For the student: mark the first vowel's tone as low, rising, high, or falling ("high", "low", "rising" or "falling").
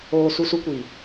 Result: low